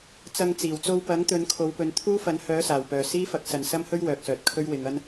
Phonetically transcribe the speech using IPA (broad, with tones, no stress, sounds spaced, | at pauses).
t͡s ɐ˧ ŋ t͡s iː˨˩ w t͡s o˧ w p ɐ˨˥ ŋ t̪ ɵ˨˧ n kʰ o˨˧ w p ɵ˨˧ n t̪ʰ uː˥ f ɐ˨˥ n h œː˨˥ s aː˨˩ w p œː˨ s iː˥ f ɐ˨˥ k̚ s ɐ˨ n s ɐ˥ m h ɵ˥ ɥ w œː˨ k̚ s œː˨ t̚ kʰ ɵ˥ ɥ w ɪ˨˧ ŋ ɐ˥ n